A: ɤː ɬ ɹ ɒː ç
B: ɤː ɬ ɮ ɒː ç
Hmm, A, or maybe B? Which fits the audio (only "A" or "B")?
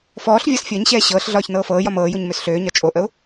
B